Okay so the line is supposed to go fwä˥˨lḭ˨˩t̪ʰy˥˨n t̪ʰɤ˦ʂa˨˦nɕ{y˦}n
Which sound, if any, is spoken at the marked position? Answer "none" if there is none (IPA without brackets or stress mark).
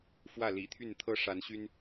y˦